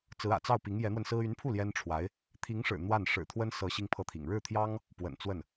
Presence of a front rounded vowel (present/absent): present